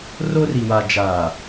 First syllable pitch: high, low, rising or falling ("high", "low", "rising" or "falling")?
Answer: high